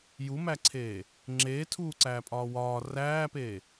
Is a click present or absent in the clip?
present